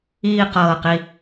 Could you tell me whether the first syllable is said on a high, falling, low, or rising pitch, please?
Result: falling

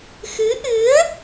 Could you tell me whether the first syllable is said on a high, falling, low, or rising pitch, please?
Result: rising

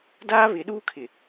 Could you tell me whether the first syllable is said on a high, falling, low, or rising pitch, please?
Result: high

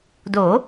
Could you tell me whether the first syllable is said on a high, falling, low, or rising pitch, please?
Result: rising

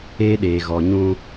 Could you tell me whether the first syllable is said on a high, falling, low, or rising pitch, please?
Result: high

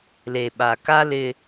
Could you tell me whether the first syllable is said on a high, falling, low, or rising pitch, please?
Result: low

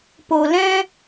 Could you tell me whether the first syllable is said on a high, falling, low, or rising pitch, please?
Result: low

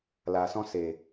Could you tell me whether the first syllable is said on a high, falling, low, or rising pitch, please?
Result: low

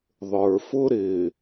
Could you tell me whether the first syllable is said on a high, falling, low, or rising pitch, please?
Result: low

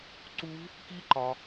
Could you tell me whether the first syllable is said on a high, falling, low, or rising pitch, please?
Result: high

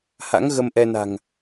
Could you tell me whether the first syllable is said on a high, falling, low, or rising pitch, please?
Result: rising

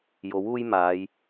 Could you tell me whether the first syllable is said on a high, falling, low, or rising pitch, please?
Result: rising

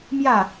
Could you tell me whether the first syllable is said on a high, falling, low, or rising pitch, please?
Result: falling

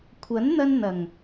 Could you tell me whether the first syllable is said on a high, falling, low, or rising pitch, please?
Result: rising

